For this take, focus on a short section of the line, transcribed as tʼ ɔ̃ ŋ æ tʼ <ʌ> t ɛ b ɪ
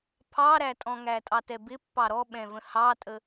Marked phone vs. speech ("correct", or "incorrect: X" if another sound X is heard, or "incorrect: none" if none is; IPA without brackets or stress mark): incorrect: ɑ